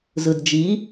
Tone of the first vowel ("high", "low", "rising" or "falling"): low